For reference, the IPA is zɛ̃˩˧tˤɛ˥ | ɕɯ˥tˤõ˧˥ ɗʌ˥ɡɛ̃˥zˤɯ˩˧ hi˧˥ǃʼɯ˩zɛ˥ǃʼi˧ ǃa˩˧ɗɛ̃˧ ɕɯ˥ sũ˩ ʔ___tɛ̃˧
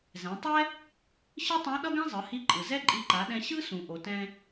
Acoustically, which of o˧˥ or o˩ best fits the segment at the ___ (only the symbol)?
o˩